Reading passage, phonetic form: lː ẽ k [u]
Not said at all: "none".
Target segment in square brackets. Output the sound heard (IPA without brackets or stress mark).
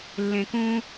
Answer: ũ